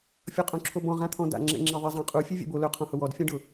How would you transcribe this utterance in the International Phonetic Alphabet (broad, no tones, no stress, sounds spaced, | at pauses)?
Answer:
fʲ ɔ qʼ õ ǁʰ o b ɔ̃ ʁ ã t̪ʰ ɔ̃ d a̰ ŋ͡ǁ ɛ̰ ŋ͡ǁ e ðˤ ɪ zˤ ã qʼ u fʲ e vʲ ɛ̰ b o l ʊ qʰ ɔ̃ h ʊ w ɔ d fʲ ã ɖ ʊ